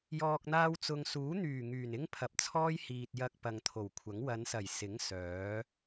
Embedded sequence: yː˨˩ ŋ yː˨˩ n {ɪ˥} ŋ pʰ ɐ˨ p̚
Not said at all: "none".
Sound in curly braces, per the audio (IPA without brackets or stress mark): ɪ˥